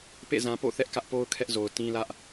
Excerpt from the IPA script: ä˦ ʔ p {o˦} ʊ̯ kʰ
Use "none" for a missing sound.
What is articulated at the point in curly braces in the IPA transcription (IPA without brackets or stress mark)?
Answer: o˦